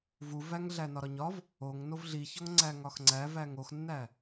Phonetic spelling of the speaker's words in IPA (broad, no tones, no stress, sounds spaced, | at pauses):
v u v æ ŋ ɮ æ n ɒ ɾ ɒ ɲ ɒ v | o ŋ n o v ɮ i ç ɒ ŋ ŋ͡ǀ æ ŋ ɒ x ŋ͡ǀ æ v æ ŋ o x nː æ